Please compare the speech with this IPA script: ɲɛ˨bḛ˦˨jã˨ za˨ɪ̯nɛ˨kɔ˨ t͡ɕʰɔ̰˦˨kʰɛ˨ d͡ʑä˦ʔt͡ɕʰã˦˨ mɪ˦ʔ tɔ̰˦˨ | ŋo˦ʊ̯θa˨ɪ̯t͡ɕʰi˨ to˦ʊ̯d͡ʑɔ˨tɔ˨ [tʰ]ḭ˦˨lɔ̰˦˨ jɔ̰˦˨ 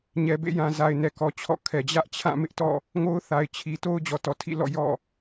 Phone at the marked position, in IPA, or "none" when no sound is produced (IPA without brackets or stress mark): tʰ